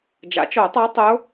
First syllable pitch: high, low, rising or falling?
rising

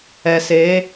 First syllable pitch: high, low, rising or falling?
low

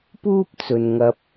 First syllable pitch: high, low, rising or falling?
high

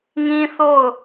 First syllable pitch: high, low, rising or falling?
high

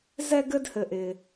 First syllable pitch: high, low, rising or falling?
high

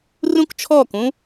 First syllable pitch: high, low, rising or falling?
high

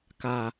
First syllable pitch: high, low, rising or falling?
low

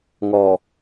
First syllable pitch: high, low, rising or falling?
low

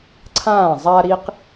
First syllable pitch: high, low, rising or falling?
falling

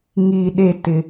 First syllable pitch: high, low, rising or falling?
low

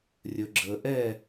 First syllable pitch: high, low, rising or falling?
low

